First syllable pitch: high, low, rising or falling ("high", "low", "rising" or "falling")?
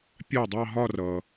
falling